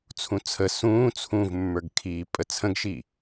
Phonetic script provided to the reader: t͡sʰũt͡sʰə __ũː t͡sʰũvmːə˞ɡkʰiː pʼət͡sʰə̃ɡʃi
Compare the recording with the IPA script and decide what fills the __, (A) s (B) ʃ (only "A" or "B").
A